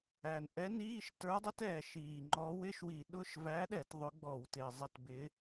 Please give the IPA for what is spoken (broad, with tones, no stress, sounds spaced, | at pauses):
æ˩ n ʔ ɛ˧˥ n iː˧˥˧ ʃ t ə˞˧˥ dˤ ɪ˧˥ t ɛː˩ ʃ iː˩ ŋ͡ǃ ɔ˧˥ w ɪ˧˥˧ ʃ w i˧˩˧ ɗ ʊ˧˥˧ ʃ v æ˧˥ ɗ ɛ˧˩˧ t ðˤ ʊ˧˥ ɡ͡b ɔ˧˩˧ w t ɪː˩ zˤ ɪ˧˥˧ t b ɪ˧˥